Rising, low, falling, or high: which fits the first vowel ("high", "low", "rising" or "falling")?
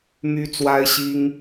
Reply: high